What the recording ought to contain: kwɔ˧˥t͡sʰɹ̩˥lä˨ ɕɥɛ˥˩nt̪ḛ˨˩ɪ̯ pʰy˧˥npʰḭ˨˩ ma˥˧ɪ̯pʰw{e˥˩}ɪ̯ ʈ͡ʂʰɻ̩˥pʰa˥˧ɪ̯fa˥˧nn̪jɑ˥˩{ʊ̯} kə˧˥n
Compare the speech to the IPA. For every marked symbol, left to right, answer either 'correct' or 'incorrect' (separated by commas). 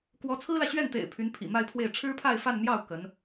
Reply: correct, correct